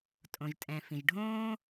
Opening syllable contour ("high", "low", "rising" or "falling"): low